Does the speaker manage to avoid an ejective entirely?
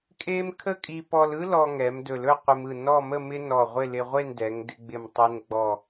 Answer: no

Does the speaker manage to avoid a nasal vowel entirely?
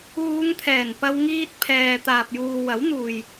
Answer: yes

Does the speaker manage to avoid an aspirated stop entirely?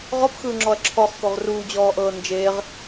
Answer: no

